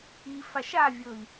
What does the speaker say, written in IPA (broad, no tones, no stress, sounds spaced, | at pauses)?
i f a ʃ a vʲ ɤ i̯